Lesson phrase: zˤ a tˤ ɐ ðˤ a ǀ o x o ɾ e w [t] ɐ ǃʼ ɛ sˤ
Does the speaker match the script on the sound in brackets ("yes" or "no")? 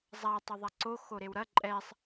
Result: no